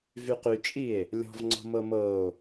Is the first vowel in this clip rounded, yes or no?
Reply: yes